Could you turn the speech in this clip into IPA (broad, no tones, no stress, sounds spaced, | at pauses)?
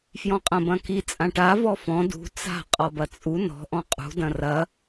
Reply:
f j ɔ̃ qʼ ɐ̃ b ɐ̃ k i t͡sʼ ã ʈ a v ɔ f ɔ̃ d ṳ t͡s a̤ qʼ ɔ b ɐ t͡sʼ u n ɔ̤ ʔ ɔ̃ qʼ ṳ d ɐ̃ r ɐ